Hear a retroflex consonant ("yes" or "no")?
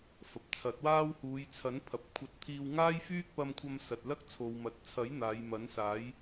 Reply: no